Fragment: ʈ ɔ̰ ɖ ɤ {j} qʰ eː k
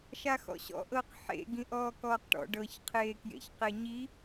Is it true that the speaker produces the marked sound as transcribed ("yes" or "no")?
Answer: no